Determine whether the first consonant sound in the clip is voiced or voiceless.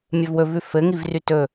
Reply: voiced